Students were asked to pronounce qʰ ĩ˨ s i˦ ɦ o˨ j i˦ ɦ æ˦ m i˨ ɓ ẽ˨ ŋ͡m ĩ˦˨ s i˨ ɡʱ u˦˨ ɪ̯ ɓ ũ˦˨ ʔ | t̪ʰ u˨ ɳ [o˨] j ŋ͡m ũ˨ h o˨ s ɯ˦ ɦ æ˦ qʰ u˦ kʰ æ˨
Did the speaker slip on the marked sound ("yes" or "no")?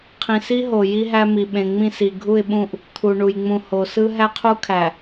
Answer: yes